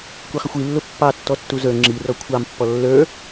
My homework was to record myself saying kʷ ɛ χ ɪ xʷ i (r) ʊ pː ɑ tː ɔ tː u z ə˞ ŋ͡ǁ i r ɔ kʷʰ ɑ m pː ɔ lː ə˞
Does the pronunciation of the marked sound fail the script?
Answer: yes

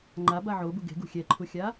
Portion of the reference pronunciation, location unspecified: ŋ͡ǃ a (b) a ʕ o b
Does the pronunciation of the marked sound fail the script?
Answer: no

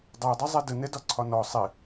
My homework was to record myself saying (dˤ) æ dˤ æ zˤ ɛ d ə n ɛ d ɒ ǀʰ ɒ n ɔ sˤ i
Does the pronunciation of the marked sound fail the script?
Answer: no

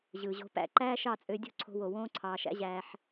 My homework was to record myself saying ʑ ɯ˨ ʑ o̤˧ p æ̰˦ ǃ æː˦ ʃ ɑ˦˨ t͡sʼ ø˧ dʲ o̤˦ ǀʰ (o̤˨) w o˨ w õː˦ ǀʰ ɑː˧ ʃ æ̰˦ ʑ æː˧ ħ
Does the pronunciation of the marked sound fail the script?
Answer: yes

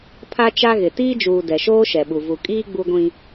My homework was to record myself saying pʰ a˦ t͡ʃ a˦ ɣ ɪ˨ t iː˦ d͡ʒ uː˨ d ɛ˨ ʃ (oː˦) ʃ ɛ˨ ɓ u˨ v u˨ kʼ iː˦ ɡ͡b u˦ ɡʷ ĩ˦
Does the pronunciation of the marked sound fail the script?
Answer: no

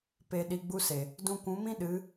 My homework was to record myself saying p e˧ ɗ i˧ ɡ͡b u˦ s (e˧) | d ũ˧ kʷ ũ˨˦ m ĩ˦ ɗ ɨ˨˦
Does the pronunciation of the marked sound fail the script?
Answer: yes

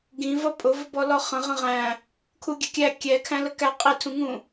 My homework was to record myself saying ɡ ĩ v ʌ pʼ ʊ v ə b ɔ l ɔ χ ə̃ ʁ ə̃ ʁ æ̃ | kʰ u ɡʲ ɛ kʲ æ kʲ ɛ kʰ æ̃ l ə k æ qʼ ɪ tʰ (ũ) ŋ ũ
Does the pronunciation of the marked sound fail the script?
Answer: no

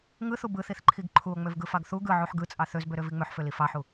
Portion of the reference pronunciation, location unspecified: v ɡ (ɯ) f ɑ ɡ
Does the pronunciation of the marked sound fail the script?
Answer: no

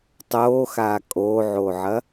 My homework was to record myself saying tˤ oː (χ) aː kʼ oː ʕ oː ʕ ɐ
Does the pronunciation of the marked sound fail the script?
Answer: yes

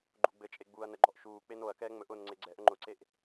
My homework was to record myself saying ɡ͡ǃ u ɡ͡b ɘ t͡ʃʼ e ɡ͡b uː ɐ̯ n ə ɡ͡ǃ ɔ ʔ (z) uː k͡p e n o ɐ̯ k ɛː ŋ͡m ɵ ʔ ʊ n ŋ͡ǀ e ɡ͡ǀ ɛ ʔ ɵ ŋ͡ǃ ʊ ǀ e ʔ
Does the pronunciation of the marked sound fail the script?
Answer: yes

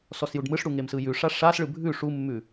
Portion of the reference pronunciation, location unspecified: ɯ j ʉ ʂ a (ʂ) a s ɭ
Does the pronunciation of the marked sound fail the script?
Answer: no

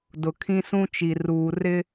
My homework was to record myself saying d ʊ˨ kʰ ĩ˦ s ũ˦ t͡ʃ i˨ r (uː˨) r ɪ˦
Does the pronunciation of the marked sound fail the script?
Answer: no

